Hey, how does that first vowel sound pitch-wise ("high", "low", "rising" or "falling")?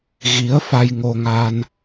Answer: rising